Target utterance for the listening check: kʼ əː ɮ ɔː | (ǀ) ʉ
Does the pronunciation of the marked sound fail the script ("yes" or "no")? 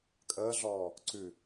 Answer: no